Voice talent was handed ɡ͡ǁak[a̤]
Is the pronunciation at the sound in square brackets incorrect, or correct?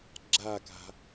correct